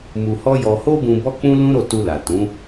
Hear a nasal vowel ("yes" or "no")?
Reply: yes